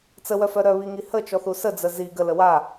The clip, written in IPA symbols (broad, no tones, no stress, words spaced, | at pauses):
t͡səwœfœ ɾœβiŋi hət͡ʃɔθu səd͡zə zi ɡələ wa